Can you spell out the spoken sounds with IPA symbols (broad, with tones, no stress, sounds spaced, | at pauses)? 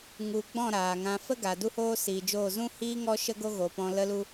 ŋ u˧ ɡ͡b ɔ̃˦˨ ɾ aː˨ ŋ ã˧ f ə˦ ɡ a˨ d u˦ h oː˦ s iː˨ d͡ʒ oː˦˨ z ũ˦ h iː˦ ŋ ɔ˦ ʃ ə˦ ɡ o˦ ɣ o˨ p ɔ̃˧ l ə˦ l u˦